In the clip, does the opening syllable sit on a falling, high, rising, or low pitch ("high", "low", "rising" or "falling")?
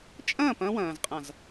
falling